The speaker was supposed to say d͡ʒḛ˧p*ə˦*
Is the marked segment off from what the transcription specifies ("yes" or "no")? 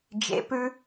yes